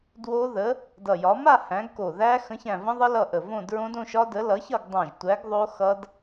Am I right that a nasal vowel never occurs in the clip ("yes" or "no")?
no